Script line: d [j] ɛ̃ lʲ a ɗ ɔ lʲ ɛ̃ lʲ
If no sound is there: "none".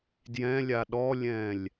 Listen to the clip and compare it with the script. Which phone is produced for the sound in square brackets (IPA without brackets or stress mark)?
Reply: j